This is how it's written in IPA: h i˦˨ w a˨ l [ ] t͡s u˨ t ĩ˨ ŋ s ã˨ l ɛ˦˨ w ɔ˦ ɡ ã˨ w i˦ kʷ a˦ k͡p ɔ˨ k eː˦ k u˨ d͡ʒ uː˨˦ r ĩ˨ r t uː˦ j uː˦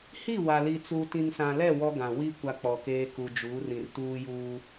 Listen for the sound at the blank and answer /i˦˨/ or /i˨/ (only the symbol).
i˨